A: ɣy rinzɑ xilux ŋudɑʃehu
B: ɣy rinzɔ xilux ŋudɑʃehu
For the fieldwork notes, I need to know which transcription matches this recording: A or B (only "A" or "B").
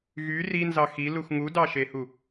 A